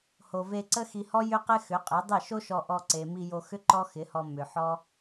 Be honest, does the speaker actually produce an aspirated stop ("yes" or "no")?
no